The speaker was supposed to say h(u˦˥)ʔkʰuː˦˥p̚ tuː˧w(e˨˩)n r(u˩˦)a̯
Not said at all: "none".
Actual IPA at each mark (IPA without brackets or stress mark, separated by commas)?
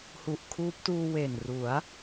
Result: u˨˩, e˨˩, u˩˦